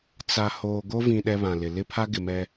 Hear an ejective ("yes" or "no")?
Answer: no